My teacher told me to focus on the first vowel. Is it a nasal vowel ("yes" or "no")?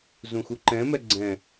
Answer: yes